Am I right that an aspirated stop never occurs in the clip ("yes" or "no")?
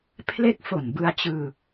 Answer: no